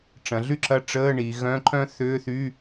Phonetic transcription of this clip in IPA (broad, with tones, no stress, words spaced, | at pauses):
ʈ͡ʂɐ̃˩˧ɮy˥ǁɐ˧˥˧ ʈ͡ʂəː˧˥˧ ɳi˩˧ ɣœ̃˧˥˧ǃœ̃˥θʏː˧˥˧θy˧˥˧